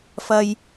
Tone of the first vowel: high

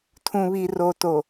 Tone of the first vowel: low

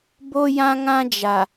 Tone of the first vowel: high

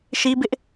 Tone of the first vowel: high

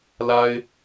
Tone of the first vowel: high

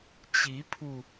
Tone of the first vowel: rising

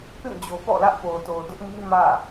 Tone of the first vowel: falling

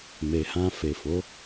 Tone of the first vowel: low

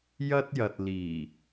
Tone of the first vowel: high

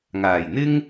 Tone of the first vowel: low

